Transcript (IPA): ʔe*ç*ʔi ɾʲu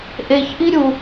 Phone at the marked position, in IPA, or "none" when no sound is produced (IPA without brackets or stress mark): ç